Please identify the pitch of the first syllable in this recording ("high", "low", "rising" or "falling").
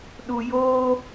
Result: low